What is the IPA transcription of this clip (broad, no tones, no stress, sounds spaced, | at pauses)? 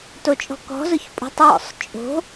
t o t͡ʃʼ ɔ̤ k ɔ̤ z ʊ ç pʼ ṳ tˤ w ɔ̰ sˤ t͡ʃʼ o̤